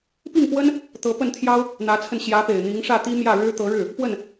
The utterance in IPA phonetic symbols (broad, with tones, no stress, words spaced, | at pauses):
pi˥˩ŋpwə˥n | t̪ɤ˧˥pə˥˩nt̪ʰjɑ˥ʊ̯ | n̪ä˧˥t͡sʰə˧n ɕjä˧˥pe˨˩ɪ̯ n̪i˧˥ŋʂä˥˩t̪i˥ mjä˥˩ɻɻ̩˥ t̪ɤ˧˥ɻɻ̩˥˩ | pwə˥˩n